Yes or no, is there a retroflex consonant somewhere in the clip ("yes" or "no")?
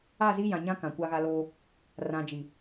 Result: no